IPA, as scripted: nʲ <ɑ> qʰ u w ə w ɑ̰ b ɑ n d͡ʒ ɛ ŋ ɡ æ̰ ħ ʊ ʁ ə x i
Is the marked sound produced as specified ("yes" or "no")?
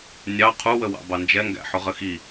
yes